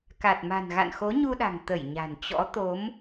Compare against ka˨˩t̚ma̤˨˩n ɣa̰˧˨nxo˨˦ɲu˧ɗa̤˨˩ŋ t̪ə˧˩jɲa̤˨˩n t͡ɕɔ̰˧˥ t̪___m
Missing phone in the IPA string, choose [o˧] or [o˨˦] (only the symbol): o˨˦